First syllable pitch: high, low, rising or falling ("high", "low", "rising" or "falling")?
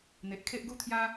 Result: low